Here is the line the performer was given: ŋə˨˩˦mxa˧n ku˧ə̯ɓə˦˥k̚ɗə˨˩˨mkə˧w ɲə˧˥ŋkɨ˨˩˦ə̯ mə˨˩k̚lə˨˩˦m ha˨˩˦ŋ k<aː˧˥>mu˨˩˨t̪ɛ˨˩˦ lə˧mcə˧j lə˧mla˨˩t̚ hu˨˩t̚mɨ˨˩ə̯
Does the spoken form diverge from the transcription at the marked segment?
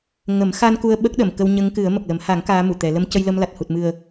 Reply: no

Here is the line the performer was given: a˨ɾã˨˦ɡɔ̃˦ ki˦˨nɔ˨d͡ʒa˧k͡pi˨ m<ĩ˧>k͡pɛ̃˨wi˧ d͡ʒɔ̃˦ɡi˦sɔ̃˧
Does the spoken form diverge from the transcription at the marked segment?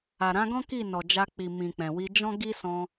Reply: yes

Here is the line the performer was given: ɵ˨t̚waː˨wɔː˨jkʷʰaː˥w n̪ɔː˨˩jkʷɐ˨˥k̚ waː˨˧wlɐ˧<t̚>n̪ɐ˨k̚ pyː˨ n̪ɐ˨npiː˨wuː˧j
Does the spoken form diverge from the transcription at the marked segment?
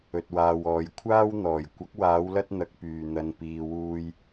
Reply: no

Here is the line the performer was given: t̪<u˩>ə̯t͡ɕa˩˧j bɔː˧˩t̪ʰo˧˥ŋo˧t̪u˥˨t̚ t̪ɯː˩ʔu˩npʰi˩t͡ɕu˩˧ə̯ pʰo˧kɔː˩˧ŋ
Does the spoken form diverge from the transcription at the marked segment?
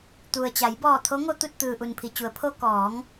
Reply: no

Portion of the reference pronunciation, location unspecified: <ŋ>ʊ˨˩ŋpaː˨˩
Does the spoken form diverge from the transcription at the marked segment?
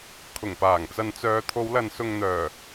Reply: yes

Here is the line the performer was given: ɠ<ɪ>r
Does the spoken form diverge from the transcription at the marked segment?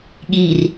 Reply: yes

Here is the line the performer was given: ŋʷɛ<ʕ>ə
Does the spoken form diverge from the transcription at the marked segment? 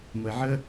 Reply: no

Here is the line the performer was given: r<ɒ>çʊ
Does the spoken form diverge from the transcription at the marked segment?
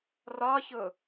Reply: no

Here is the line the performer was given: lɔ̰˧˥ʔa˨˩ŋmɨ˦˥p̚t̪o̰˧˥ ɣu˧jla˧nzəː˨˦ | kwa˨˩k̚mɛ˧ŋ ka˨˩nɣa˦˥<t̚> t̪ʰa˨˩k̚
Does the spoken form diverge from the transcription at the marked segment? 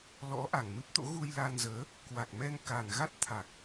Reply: no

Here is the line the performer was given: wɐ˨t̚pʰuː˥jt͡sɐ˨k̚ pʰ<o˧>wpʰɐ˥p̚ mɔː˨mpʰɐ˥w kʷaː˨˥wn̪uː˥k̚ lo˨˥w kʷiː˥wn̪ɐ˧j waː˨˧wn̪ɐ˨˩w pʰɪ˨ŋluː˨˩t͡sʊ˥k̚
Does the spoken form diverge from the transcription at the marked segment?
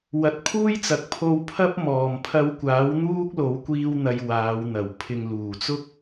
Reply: no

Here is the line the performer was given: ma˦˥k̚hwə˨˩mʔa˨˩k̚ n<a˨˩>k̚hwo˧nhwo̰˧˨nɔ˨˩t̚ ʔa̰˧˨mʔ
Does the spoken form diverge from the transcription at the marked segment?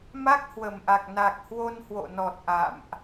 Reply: no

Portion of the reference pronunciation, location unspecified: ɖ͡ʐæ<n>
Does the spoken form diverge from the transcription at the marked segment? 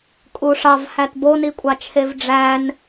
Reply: no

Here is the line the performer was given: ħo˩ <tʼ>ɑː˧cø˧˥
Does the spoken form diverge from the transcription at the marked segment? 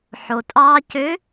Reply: no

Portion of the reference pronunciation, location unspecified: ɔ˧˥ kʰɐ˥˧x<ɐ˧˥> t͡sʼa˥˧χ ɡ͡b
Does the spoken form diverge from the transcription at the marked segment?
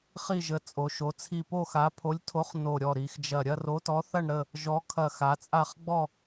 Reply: yes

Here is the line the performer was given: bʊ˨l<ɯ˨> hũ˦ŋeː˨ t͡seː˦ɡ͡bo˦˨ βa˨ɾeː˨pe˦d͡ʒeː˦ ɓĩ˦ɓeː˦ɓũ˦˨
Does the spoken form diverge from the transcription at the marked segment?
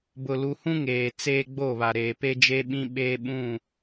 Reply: yes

